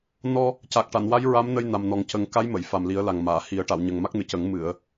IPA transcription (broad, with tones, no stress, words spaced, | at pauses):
nɔ˧ | ca˨˩k̚ʈa˨˩˨nwa˧˥j ɹa˧˥mnə˧j na˨˩mnɔ˨˩˦ŋcə˨˩˦ŋ ka˧˥jmə˨˩˨j fa˨˩mli˨˩˦ə̯la˨˩ŋmaː˨˩˨ hi˨˩˦ə̯ ʈa˨˩˨wɲə˨˩ŋma˦˥k̚nɨ˨˩ cə˨˩˦ŋ mɨ˨˩˨ə̯